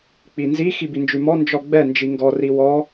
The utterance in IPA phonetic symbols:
k͡p i n z i x i b i n d͡ʒ ʉ m ɔ n d͡ʒ ɔ ɡ͡b ɛ n d͡ʒ i ŋ ɡ ɔ r i w ɔ

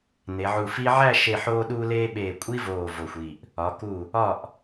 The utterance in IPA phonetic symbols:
n e˩˧ ʕ u˧˩ f i˥ ʕ æ˥˧ ʃ e˧˩ ħ oː˧ ɗ uː˧ l eː˧ ɓ eː˧˩ kʷʼ i˥ v oː˧˩ v o˧˩ xʷ i˧˩ ʔ | ɒ˩˧ k u˧˩ | ɒ˧˩ ʔ

